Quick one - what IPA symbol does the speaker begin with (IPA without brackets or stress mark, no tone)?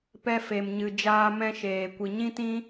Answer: p